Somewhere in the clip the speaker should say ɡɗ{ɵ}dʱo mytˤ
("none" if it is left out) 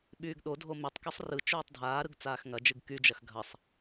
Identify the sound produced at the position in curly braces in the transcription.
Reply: o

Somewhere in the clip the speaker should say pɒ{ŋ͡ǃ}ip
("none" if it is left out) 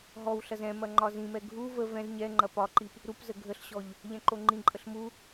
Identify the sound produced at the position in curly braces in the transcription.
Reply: ǃ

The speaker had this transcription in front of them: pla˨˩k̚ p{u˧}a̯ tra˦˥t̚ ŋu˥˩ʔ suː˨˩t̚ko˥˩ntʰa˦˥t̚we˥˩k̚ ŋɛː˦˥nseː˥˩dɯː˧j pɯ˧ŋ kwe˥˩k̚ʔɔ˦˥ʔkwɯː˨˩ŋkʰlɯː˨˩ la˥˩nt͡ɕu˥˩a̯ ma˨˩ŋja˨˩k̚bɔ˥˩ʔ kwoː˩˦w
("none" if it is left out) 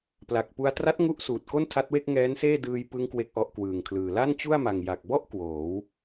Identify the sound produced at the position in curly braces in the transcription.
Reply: u˧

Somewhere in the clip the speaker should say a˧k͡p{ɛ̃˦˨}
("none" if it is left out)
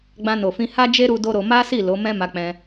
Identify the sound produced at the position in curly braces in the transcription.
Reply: ɛ̃˧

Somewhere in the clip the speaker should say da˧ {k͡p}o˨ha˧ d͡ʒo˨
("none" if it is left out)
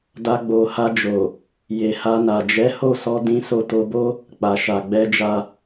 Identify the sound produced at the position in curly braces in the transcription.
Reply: ɡ͡b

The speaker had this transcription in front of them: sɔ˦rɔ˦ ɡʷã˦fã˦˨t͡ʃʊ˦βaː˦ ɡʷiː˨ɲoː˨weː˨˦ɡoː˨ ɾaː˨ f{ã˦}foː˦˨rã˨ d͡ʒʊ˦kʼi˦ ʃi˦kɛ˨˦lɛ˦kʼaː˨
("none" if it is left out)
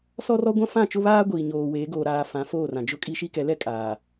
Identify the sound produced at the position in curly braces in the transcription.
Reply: ã˨˦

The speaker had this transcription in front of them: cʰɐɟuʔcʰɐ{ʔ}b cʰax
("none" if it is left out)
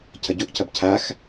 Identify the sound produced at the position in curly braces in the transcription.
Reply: none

